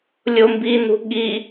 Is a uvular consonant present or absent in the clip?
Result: absent